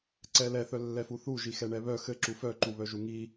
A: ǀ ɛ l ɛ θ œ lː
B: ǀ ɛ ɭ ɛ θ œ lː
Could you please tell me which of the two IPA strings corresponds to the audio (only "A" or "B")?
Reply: A